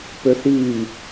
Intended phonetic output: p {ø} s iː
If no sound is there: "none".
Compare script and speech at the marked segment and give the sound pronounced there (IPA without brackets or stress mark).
ø